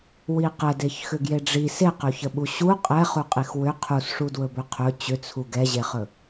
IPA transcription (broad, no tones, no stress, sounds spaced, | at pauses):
w i q ə d e ç x ʏ ɡ j e ɖ͡ʐ i s e q ɵ ç ə ɓ u ɕ u qʼ ɛ χ u qʼ i x w ʏ qʰ u s ʂ u d w ɵ b ɵ qʰ ɵ t͡ɕ ʏ t͡sʰ u ɡ ɛ ʑ e χ ɵ